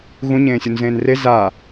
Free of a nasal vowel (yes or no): no